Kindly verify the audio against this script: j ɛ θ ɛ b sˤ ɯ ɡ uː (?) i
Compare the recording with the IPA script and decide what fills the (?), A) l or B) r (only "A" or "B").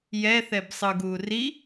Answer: B